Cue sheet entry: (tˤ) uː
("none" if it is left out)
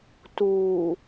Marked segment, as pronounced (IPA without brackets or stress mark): t